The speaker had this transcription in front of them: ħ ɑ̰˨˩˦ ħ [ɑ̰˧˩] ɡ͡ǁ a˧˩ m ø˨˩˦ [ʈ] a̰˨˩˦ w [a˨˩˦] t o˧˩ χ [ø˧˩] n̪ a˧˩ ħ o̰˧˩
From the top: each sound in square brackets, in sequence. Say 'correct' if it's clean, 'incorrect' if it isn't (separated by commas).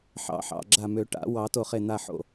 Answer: correct, correct, incorrect, incorrect